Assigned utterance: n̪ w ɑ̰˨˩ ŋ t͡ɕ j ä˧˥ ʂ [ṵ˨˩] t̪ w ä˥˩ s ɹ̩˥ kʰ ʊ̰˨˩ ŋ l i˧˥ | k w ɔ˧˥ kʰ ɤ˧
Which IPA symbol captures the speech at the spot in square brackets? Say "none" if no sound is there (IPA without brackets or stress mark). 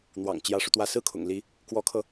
u˧